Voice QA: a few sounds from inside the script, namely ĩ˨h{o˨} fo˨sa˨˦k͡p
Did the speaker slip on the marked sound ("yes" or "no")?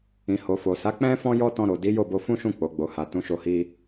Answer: no